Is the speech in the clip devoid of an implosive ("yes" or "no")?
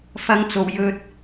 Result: yes